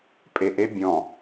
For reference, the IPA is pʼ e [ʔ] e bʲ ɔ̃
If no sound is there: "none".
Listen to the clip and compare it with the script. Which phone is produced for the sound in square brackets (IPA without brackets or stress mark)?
ʔ